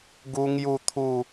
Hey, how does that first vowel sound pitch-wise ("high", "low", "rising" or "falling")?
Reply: high